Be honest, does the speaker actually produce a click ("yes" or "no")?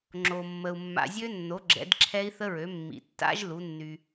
yes